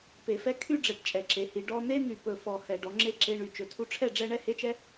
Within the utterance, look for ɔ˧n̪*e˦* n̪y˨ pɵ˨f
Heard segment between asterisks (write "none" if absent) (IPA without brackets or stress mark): e˦